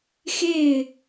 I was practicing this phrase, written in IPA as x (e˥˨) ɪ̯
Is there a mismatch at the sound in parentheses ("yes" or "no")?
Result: no